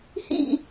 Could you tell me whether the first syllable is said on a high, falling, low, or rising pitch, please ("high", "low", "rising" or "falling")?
falling